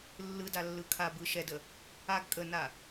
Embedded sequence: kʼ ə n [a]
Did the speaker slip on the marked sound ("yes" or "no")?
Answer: no